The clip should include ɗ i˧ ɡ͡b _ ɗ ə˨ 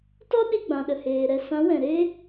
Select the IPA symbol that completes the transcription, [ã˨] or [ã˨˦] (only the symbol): ã˨